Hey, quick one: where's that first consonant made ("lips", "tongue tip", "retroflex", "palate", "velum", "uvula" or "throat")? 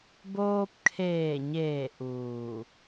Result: lips